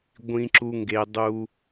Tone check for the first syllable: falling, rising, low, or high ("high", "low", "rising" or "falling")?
high